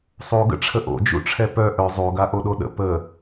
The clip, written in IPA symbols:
sˤ o ɡ ə̰ ʈ͡ʂʰ ə ʔ o̰ d͡ʒ ṵ ʈ͡ʂʰ ɛ p œ ʔ œ zˤ o ɡ a ʔ o ɗ o ɗ ə̰ p ə

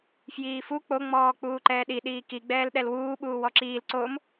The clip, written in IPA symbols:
f j iː f u k͡p o ŋ͡m ɔː k͡p uː ǃ ɛː ɗ i ɗ iː k i ɡ͡b ɛː l ɗ ɛ l w uː ɓ uː w ɔ ǁ iː l ǀ o m

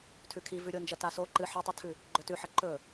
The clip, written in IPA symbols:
tʰ ʉ kʰ i v ʉ ɾʲ o n d͡ʒ ɐ t a s o ǃ ɨ ħ ɐ tˤ ɨ tʰ ʉ | ɡ͡ǃ ɵ t ʉ ħ ɐ ǃ ɵ

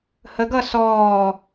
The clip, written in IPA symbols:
h ə ɡ ʌ s ɔː

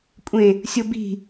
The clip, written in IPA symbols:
kʷʼ ẽ | sʲ o b i̤

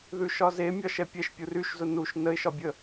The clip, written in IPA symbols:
ð ʉ ʃ ɒ z e mʲ ɒ ʃ ɛ pʲ ɛ ʃ pʲ u r y ʃ z ʊ n u ʃ n ə ɪ̯ ʃ ɒ bʲ ə

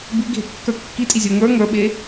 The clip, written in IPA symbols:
b i ɡʱ e kː ə˞ kː i tʼ i zʲ ə˞ ŋ ə˞ ŋ ə˞ ɓ e

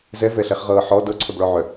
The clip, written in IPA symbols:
z ɛ v ɛ ɬ ɛ χ ʁ ɤː ħ ɔ d ɤ ǀʰ œ b ɭ ɔ ʕ œ

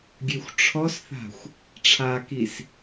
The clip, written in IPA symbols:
ɡʲ ø xʷ ʈ͡ʂʰ ɔ s θ a̤ xʷ | ʈ͡ʂʰ a k i s

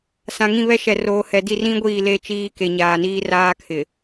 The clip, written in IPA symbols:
s ã˨ ŋ ĩ˦˨ β ɛ˦ ʃ ɛ˨ r oː˨ h ɛ˨ d i˦˨ r ĩ˦ ɡʷ iː˦˨ l e˦ t͡ʃ iː˦ k e˨ ɲ aː˨ n iː˦ r aː˦ kʰ ɪ˨

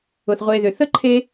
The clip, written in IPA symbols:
ʊ˩ θ ʁʷ e˨ ð ʏ˩ θ ə˥ ǃʰ e˦

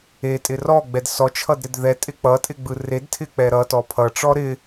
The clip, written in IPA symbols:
e tʼ ɪ r ɔ ɡ͡b ɛ d s ɔ t͡ʃʰ ʌ d ɾ ɪ d ð ɛ tʼ ɪ k͡p ʌ tʼ ɪ ɡ͡b ɯ r e d tʰ ɪ k͡p ɛ ɾ ʌ t ɔ pʰ ʌ ʈ͡ʂ ɔ ɾ ɪ

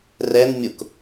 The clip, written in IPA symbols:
r ɛ n mʲ ʊ k

